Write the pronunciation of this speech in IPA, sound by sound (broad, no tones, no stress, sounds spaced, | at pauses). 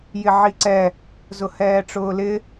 j ɪ ʕ i ǀ ɛ | z ʊ h ɛː ʈ͡ʂ ʊː l ɪ